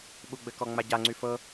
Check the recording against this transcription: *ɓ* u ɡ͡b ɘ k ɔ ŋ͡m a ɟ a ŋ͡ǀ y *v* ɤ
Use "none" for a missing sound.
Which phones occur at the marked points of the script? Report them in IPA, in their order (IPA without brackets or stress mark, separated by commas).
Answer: ɓ, f